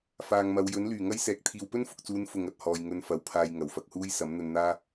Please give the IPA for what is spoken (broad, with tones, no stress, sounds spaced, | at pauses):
f aː˨ ŋ m ɐ˨˧ w j ɵ˨˥ n l yː˨˩ ŋ ɐ˥ j s ɛː˨ k̚ t̪ʰ iː˨ w p ɵ˥ n f ʊ˨ k̚ t͡s uː˨˧ n f ʊ˨ ŋ ɐ˨ t̚ h ɔː˨ j ŋ ɵ˧ n f ɐ˨˧ w pʰ aː˧ j ŋ ɐ˨˩ w f ɐ˧ k̚ h uː˥ j s ɐ˨˥ m n̪ ɵ˧ n n̪ aː˥